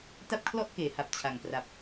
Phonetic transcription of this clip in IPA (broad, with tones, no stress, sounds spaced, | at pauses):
t a˥˩ p̚ kʰ l ɔ˥˩ ʔ k eː˩˦ h a˨˩ p̚ t͡ɕʰ a˨˩ ŋ p r a˨˩ p̚